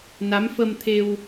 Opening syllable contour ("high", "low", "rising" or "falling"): rising